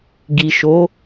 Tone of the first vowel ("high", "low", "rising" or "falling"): low